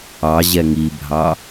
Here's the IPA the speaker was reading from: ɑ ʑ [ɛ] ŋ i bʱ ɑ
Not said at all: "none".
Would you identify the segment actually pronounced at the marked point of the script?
ɛ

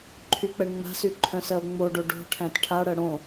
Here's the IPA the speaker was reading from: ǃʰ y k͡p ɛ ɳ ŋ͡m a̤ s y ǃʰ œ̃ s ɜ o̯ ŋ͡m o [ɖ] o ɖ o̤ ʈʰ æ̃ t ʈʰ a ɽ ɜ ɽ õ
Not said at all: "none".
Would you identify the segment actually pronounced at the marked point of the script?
ɖ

